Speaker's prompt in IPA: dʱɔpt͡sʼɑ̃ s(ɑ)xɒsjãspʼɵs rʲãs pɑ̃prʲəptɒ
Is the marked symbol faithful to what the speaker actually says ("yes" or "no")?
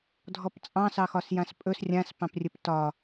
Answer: yes